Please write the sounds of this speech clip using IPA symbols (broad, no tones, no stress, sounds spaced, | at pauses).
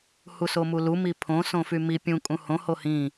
h u s o m u l u m i pʰ õ s õ f y m i pʲ ũ kʼ ũ h õ h o h ĩ